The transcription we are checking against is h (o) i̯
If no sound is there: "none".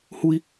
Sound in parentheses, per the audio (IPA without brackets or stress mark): u